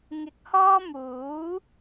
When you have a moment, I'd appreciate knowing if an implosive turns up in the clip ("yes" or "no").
no